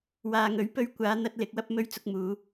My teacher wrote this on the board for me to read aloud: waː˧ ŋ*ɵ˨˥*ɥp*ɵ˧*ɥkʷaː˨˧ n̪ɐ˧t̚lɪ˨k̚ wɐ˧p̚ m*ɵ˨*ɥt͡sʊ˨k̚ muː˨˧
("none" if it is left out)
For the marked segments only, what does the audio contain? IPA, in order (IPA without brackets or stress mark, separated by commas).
ɵ˨˥, ɵ˧, ɵ˨˧